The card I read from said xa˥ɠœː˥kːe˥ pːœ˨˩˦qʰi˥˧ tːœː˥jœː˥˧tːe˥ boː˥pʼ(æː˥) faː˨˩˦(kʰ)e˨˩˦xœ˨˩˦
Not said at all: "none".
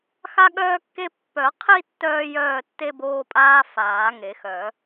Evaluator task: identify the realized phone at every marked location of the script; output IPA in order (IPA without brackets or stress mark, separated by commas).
aː˥, ŋ